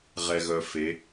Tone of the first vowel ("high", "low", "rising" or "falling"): low